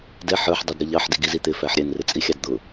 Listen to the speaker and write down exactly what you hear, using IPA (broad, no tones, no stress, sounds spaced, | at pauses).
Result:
d ɛ ħ ə˞ ħ dˤ i d ɾ ʌ ʎ ɑ ħ d i ɡ i z i t̪ ɪ f æ ħ ɾʲ ɛ n r ɪ t͡sʼ i xʲ ɑ d d̪ ʊ